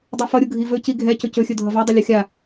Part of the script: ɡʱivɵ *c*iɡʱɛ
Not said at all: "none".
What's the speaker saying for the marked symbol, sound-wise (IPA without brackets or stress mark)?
c